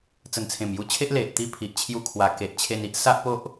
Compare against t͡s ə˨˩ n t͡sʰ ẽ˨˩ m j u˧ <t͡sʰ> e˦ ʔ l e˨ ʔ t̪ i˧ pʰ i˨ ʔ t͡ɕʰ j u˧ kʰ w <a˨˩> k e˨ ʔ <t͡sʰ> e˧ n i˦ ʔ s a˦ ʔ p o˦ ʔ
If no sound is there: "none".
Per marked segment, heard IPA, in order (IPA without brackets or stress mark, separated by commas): t͡ɕʰ, a˨˩, t͡ɕʰ